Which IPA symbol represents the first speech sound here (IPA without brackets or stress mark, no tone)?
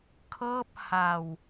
kʰ